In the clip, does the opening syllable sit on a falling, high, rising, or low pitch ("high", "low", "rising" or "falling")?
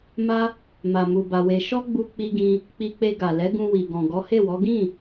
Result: high